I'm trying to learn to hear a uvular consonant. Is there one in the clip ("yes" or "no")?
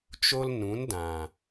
no